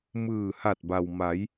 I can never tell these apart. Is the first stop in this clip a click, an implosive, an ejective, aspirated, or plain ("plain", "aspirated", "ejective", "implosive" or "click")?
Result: plain